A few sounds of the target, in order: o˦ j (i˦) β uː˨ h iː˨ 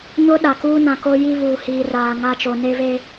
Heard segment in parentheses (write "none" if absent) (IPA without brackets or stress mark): i˦